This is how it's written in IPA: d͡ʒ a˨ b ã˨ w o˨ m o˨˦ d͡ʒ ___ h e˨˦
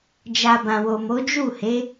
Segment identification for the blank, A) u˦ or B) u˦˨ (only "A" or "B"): B